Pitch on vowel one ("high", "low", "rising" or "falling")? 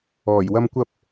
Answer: low